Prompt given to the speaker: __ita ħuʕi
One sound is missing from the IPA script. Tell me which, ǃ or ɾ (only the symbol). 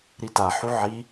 ɾ